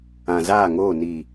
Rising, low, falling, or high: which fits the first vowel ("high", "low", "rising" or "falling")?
low